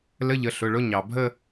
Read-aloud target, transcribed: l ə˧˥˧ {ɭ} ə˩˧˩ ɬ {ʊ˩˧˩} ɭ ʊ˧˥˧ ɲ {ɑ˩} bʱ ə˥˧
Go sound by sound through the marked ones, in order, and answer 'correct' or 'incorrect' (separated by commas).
incorrect, correct, correct